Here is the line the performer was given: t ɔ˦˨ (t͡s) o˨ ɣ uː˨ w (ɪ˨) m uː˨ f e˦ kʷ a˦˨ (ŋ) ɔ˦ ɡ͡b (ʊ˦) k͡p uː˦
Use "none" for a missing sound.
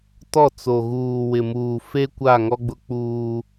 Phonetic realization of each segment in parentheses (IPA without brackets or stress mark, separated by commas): t͡s, ɪ˨, ŋ, ʊ˦